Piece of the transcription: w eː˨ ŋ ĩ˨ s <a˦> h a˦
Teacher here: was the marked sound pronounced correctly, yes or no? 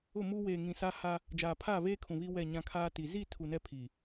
yes